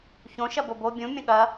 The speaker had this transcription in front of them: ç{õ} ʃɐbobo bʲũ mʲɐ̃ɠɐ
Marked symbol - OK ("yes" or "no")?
yes